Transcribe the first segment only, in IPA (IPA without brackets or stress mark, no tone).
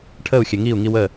ʈʰ